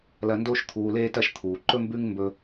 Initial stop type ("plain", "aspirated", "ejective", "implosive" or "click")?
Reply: plain